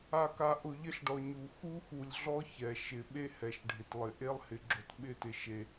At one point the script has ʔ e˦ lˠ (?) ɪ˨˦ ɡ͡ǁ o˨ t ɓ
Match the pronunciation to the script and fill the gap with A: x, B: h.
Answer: B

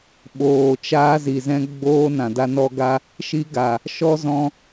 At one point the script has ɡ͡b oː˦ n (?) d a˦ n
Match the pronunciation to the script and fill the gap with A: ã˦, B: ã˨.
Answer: B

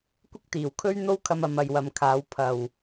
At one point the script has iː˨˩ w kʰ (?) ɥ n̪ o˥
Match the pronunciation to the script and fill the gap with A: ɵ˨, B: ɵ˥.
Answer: B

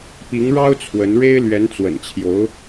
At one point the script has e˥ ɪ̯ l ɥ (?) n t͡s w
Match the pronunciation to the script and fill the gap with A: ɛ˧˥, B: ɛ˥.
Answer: A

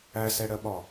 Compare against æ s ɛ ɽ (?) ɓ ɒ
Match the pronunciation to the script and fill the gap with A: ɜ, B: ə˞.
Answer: A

